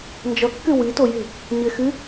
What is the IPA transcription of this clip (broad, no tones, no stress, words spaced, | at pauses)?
nd͡ʒʌkːy witoji | ɲɪxy